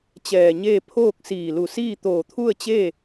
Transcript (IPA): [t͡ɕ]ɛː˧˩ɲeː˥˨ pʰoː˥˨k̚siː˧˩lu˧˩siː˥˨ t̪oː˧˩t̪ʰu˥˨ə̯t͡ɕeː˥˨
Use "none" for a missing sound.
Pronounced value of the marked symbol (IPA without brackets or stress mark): t͡ɕ